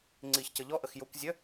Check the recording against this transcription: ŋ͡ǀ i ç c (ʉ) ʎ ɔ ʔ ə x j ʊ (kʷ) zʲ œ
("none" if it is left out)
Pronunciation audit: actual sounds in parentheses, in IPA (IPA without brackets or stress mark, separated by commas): ə, kʷ